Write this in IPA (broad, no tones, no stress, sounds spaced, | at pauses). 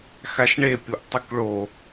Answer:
x a ʃ ɳ e pʲ o ʔ tˤ ʉ k ɭ o